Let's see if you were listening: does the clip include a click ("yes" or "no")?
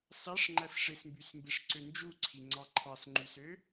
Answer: yes